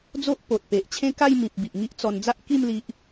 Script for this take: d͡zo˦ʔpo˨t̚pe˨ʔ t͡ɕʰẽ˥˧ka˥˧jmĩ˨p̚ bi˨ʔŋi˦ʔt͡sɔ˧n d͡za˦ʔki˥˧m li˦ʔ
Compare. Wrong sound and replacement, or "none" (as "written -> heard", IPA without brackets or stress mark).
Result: none